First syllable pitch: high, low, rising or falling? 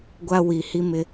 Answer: high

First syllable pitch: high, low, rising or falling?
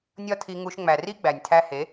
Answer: high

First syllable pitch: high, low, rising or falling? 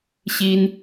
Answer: high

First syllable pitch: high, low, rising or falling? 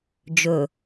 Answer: low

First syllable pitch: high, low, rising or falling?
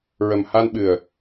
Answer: low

